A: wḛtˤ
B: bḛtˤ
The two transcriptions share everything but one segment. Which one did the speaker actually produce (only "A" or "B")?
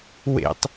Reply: A